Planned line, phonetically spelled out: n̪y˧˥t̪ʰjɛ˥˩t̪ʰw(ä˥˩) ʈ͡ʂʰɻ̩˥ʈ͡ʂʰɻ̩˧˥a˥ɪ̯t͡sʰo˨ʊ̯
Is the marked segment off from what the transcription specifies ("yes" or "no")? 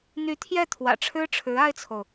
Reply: yes